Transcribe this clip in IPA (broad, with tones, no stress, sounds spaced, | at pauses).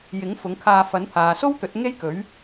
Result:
j ɪ˨˥ ŋ f ʊ˨˧ ŋ kʰ aː˧ f ɐ˨˥ n pʰ aː˨ s o˥ w t̪ ɵ˨˥ t̚ ŋ e˥ j k ɵ˨˥ ɥ